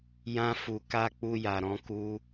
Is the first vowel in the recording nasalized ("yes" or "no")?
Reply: yes